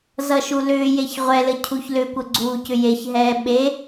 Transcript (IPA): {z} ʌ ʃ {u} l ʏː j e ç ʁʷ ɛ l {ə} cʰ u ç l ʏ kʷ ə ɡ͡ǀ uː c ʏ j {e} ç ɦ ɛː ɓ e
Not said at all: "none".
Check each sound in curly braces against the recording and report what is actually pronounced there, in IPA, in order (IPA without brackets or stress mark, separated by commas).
z, u, ə, e